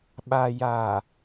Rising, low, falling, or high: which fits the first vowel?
low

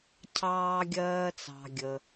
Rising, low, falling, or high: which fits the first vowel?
high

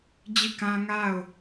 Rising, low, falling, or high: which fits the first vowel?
falling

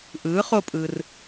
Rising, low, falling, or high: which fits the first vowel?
rising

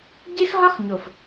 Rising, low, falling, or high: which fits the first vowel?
high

